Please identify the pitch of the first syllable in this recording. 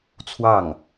falling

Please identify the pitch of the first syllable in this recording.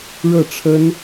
falling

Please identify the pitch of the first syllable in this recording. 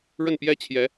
falling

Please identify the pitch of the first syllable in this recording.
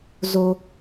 high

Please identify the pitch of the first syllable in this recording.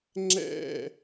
falling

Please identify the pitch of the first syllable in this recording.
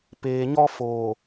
low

